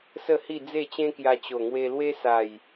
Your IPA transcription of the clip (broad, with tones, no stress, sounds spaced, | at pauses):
s ə˥˧ h i˥˧ d͡z e˥˧ t͡ɕ ẽ˦ k j a˧ t͡ɕ o˨˩ ŋ w e˧ l w e˦ s a˨˩ j